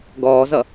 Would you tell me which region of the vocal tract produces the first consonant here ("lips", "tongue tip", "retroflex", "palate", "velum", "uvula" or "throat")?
velum